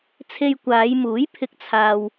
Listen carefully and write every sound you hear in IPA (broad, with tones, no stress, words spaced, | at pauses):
t͡sʰe˧jkʷaː˨˧jmuː˨˥j pʰɪ˧k̚t͡sʰaː˧w